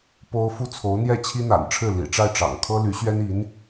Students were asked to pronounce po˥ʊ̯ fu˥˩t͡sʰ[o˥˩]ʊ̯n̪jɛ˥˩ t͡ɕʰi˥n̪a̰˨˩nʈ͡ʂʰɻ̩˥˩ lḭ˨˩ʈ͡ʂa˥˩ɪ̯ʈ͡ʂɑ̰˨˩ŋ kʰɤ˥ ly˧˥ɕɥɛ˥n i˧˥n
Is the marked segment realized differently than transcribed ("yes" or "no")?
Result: yes